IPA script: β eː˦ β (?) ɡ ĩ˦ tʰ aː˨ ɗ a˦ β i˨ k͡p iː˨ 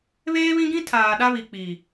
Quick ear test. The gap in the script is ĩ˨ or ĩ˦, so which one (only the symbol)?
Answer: ĩ˦